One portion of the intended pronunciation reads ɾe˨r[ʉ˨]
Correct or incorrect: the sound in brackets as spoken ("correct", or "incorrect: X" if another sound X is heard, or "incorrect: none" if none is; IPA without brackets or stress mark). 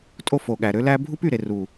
incorrect: u˨